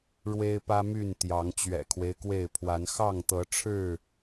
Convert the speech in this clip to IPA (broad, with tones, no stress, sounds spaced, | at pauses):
ɻ w e˦ ɪ̯ p ä˦ m y˥˨ n t̪ j ɑ˨˦ ŋ t͡ɕ ɥ ɛ̰˨˩ kʰ w e˦ ɪ̯ k w e˥˨ ɪ̯ pʰ w a˨˦ n x ɑ˥˨ ŋ t̪ ɤ˨˦ ʈ͡ʂʰ ɻ̩˥˨